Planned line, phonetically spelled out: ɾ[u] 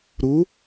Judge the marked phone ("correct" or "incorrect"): correct